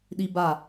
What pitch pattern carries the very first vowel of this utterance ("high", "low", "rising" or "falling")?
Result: high